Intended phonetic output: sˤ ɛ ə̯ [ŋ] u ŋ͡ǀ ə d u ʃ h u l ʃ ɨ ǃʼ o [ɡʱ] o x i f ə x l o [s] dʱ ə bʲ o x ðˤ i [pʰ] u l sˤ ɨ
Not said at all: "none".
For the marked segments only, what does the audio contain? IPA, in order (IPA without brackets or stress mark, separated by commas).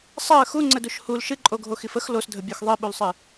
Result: x, ɡʱ, s, ɓ